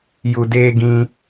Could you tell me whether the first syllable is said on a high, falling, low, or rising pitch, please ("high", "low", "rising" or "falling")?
low